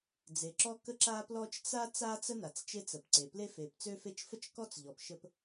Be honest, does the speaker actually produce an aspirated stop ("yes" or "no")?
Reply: no